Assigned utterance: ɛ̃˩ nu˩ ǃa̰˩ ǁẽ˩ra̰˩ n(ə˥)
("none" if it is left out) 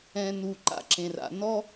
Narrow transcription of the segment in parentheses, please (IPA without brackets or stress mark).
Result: ɔ˥